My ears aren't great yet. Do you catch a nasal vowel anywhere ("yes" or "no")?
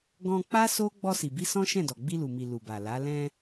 yes